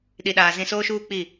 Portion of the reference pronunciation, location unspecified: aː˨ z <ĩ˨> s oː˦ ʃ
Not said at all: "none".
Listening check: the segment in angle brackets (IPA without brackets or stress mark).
ĩ˨